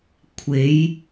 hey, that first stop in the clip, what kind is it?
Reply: aspirated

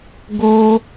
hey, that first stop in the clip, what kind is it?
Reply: plain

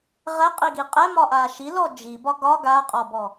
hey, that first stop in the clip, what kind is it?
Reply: ejective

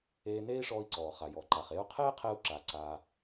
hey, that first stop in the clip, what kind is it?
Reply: click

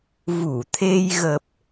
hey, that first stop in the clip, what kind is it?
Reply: aspirated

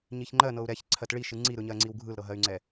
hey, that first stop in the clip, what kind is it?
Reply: click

